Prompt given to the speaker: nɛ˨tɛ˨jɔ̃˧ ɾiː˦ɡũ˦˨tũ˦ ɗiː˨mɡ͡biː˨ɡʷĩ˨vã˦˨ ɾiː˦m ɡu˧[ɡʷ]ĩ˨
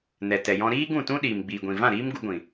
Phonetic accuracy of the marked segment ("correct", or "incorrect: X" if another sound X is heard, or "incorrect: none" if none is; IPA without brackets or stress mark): correct